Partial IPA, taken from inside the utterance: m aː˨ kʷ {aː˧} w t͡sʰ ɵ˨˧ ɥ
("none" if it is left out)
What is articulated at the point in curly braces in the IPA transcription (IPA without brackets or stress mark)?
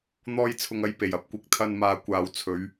aː˨